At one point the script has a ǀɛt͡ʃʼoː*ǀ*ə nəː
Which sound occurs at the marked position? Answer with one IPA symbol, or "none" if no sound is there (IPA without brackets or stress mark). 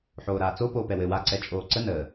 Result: ǀ